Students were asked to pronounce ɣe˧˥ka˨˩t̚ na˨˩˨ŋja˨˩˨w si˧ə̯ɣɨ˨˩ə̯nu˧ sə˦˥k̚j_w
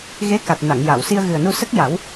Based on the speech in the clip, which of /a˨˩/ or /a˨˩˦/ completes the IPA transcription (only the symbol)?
a˨˩˦